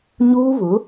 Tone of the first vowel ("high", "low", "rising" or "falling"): high